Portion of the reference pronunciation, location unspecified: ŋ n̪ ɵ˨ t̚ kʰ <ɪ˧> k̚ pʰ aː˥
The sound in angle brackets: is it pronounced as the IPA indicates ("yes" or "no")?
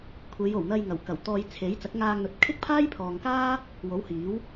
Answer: no